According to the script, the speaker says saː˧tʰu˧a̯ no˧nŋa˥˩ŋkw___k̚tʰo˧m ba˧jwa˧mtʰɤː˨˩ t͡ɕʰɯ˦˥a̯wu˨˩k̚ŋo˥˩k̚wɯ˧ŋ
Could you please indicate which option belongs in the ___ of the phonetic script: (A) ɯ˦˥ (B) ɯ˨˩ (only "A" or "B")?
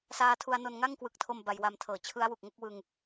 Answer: B